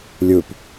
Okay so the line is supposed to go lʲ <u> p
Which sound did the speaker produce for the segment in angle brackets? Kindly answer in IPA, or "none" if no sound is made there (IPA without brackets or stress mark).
u